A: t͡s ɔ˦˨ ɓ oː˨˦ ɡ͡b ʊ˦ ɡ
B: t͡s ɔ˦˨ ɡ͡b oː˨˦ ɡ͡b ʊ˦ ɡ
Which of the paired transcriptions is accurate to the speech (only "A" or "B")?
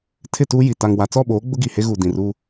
A